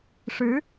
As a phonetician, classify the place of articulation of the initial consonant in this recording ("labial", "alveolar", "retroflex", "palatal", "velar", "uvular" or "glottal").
retroflex